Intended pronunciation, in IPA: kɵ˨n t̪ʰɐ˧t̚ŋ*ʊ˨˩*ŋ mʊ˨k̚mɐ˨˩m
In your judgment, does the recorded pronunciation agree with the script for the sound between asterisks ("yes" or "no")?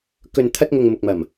no